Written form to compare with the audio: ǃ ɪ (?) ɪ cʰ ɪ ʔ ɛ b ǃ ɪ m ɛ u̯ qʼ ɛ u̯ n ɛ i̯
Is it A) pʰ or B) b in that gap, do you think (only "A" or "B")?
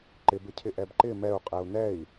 B